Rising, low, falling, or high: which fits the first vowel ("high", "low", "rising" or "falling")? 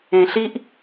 low